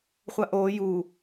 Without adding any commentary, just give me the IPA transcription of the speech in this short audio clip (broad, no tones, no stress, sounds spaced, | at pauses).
χʷ a ʔ oː j u